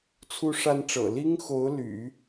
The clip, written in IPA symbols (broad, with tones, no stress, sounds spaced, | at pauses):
t͡sʰ u˥ ʂ a˥ n ʈ͡ʂ ɤ̰˨˩ l i˥ ŋ x o˧˥ ʊ̯ l y̰˨˩˦